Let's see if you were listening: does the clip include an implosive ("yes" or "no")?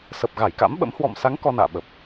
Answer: yes